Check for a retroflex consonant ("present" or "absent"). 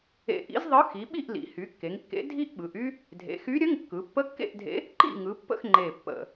absent